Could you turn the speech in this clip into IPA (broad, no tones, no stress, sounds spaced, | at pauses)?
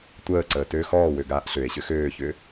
tʷ əː ǀ əː t ø x ɔː w ø ɡ aː ʔ ɬ ø e̯ ɕ ʏ x øː ç ʏ